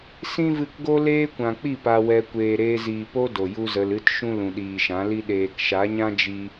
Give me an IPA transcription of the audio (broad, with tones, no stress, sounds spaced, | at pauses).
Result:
s ĩ˦ v ɨ˧ k ɡ o˦ l eː˦ kʷ ã˨ k͡p i˦˨ p a˧ w ɛ˧ kʷ eː˨ ɾ eː˧ z iː˨ p o˦ d o˨ j u˦ z ə˧ l ɨ˦ t ʃ ũ˦ l ũ˨ ɗ iː˨ ʃ ã˨˦ l i˦ ɗ eː˨ k ʃ a˨˦ ɲ ã˦ d͡ʒ i˦